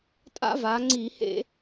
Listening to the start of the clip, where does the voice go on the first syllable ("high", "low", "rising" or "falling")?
high